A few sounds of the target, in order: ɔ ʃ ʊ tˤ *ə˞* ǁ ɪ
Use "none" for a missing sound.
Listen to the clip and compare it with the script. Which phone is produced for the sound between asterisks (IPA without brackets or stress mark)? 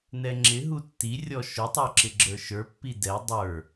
ə˞